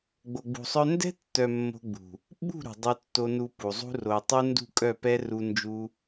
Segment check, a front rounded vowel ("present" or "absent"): present